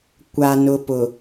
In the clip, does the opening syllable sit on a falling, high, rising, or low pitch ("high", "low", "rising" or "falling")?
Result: low